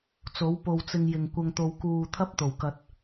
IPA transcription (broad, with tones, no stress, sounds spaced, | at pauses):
t͡s o˨˥ w p o˨ w t͡s ɪ˧ ŋ j ɪ˨ ŋ kʷ ɐ˨ ŋ t̪ o˨ w k uː˨ t̪ʰ ɐ˥ p̚ t̪ o˨˩ w k ɐ˨ t̚